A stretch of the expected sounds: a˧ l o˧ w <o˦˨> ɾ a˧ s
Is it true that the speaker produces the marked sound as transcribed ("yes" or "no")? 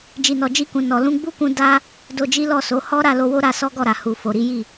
no